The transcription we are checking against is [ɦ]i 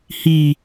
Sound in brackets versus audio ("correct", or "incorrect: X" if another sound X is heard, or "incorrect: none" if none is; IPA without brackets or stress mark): incorrect: h